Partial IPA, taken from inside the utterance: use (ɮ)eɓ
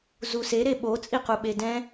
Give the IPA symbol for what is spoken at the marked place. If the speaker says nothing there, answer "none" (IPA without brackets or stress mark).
ɾ